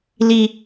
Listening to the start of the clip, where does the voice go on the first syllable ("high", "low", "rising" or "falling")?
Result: high